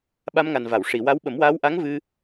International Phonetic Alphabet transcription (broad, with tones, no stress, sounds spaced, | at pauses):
ɓ a˧ m ŋ a˨˩ n v a˨˩˨ w ʂ i˨˩˨ w a˧˥ w ɓ ə˨˩˦ m w aː˧˥ w ʔ a˧˥ ŋ v ɨ˧